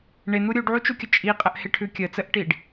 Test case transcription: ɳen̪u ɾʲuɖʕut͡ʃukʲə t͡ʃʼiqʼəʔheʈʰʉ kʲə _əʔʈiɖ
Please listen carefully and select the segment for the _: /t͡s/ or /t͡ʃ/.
t͡s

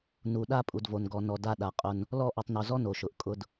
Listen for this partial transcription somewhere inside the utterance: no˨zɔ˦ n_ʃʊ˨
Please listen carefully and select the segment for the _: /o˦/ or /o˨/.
o˨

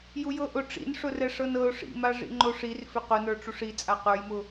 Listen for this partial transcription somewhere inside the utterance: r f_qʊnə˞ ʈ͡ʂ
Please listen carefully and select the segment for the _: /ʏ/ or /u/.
ʏ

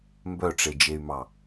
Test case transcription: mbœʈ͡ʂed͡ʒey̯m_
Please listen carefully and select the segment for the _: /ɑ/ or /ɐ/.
ɑ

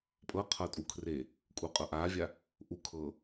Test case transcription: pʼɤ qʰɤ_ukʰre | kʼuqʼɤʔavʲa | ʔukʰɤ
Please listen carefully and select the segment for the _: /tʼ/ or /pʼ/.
tʼ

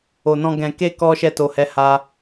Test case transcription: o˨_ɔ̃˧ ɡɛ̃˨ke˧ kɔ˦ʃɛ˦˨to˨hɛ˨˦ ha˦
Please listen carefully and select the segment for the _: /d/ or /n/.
n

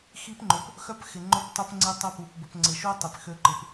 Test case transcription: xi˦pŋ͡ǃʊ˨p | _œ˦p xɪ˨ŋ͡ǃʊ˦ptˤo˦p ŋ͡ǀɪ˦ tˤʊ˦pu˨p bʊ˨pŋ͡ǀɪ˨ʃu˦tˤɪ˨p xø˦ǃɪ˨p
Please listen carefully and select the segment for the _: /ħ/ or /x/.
x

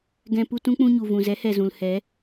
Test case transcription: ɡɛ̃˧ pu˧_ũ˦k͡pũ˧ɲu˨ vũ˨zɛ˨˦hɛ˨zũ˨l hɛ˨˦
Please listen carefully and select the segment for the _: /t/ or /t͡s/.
t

